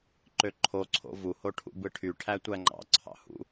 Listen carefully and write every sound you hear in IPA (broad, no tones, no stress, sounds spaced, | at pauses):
ǃ ø ǃʰ o ǀʰ o̰ v u h o ʈʰ ṵ b ɯ ʈʰ y ʈʰ æ tʷ æ ŋ͡ǃ ɑ̰ ǀʰ ɑ̰ h ṵ